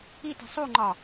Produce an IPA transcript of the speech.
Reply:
i t i̤ sˤ u ŋ͡ǃ ɒ

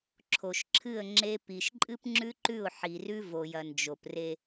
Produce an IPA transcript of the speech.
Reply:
ǁʰ o˨ ʃ ǁʰ ɨ˦˨ ə̯ ŋ͡ǁ e˦ p i˨ ʃ ǃʼ ɨ˦ p ŋ͡ǁ ʉ˦ ǃ ʉ˦˨ ʊ̯ ħ i˨ r ʉ˦ v o˨ j ɐ˨ n d͡ʒ o˨ p r e˦

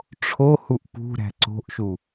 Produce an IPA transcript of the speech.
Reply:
ʈ͡ʂʰ o h u ʔ p ṳ ɾ æ̤ ǀ o̤ ʔ ʃ u

